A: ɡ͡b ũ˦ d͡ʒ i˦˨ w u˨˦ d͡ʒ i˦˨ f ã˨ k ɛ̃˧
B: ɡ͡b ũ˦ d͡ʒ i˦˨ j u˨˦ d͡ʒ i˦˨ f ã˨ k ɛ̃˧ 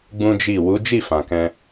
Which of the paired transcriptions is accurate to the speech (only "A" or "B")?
A